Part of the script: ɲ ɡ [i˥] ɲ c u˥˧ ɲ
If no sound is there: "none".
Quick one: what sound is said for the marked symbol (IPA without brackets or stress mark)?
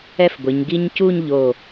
i˥